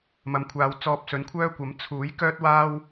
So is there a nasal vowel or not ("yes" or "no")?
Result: no